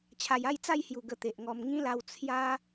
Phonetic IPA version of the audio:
t͡ɕʰa˨˩ja˥˧jt͡sa˥˧jhju˨˩ ɡə˧t̪e˨ʔŋɔ˧m ŋĩ˦la˧w t͡sʰja˦

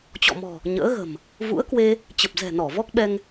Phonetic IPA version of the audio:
t͡ɕɔ̰˧˨mɔ̤˨˩ | ɲə̰ː˧˥ɣə̤˨˩m | vṵ˧˥ə̯kwe˧ | t͡ɕə˨˩p̚zɛ̤˨˩nɔ˧˩ vɔ˦˥k̚ɓɛ˧ŋ

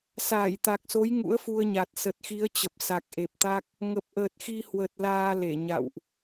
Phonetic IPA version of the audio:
saː˧˩jt̪a˨˩k̚so˨˦j ŋṵ˧˥ə̯fu˧ə̯ɲa˨˩t̚ sə˨˩t̚xi˨˦ə̯t͡ɕə˨˩p̚ sa˨˩k̚ʔe˨˩p̚t̪a˦˥k̚ | ŋə˨˩p̚ʔəː˨˩t̚xi˧hwə˨˩t̚ laː˧le˧˩ɲa̰˧˨wʔ

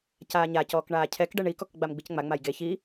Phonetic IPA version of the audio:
caːɲa cɔːkɳaːcʰɛkɖɛ ɳikɔk ɡ͡bamɡ͡bicŋ͡ma ŋ͡majɡe çi

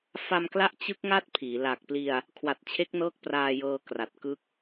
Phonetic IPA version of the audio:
fa˧mkla˦˥ʔ t͡ɕɯ˦˥k̚ ŋa˥˩t̚ pʰiː˩˦ la˨˩k̚pli˧a̯ | kʰwa˨˩t̚t͡ɕʰe˦˥k̚nɤː˦˥k̚ praː˧ jɤː˧kra˨˩t̚kɯ˥˩k̚

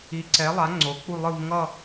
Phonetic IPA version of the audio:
i˨˥ǀɛ˨˥lˠa˨˥ ŋ͡ǀo˨˥ k͡pu˥˧lˠɯ˥˧v ŋʌ˥˧

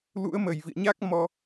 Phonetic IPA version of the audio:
lṵ˧˥ə̯ mə˨˩jvḭ˧˨ə̯ɲa˦˥k̚mɔ˧

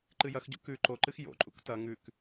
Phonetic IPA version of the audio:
ǃɨjɐxɟṵ kʉ ǃoǃɨx jo̰ǃʼṵk tɐ ŋʉk

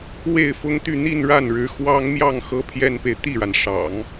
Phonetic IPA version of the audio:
we˥˩ɪ̯fʊ˥ŋt̪y˥˧ n̪i˥˧nɻa˥˩nɻɻ̩˧˥ xwɑ˥ŋmjɑ˥˩ŋ xɤ˥pʰjɛ˥npe˨ɪ̯ t̪i˥˩ɻa˩nʂɑ̰˨˩˦ŋ

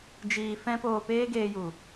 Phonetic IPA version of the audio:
d͡ʒiː˧fɛ̃˦ poː˧peː˦ɡeː˧ju˨

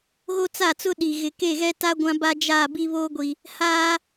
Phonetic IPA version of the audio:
ɣo˦t͡sa˦˨t͡sʊ˦ ɗi˨ ɣɪ˨ ke˦˨ɣɛ˦ta˦ ɡʷã˦ba˦ d͡ʒa˦˨bi˦βo˦ɡʷi˨ | haː˦

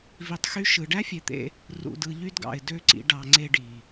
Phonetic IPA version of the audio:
vi˨tˤxy˧ ʃɯ˨ ɖæ˦fʲe˨t̪ḛ˧ | rṵ˨dɯ˨ʎy˧dɡɑ̰˨ɪ̯ dø˦ǀḭ˧ ɖɑ˨ŋ͡ǀe˧ɖi˨

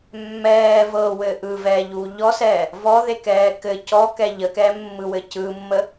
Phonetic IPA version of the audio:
mːɛː vɤwɘ ʔɯvɛːʎuː ʎɔsɛː | vɔðekɛː kɘ cɔkɛ ʎəkɛːmːɯwɘ cɯmːə

